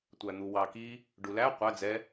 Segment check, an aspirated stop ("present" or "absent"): absent